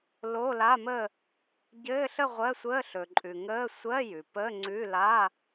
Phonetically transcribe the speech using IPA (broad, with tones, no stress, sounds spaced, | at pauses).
l o˧˥˧ l a˧˥˧ m ə˥˧ | ɟ ɘː˧˥˧ ɬ ə˥˧ ʁʷ ɜ˧˥˧ sʷ əː˧˥˧ ɬ ɵ˩ ǃʼ ʉ˩ ŋ əː˧˥˧ sʷ ɜ˧˥˧ j ʉ˩ p əː˧˥˧ ŋ͡ǀ ʉ˧˥˧ l a˧˥˧